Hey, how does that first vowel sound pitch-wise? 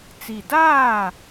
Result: low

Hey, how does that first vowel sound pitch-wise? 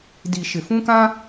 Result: low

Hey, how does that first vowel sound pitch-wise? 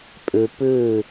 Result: low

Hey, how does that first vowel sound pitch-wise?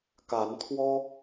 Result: rising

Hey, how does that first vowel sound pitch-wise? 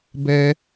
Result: low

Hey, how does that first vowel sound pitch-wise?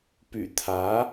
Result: low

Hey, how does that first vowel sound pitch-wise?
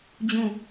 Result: falling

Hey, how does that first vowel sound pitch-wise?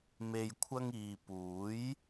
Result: low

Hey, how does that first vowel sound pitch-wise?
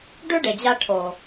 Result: high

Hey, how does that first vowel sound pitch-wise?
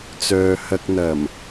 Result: low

